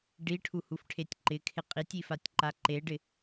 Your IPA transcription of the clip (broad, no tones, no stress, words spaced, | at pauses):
ɖiʈʰuhufʈʰetʲ ǃɪkʰɪ qʼitʲifatʲǃa ǃeɖɪ